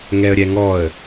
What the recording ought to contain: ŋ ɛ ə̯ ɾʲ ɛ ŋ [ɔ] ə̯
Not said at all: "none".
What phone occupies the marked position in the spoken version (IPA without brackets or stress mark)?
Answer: ɔ